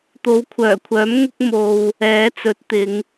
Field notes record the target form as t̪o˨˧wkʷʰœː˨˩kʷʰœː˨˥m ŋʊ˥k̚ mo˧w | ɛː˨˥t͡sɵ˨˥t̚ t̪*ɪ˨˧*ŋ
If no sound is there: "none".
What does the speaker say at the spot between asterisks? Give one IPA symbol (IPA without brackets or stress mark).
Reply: ɪ˨˧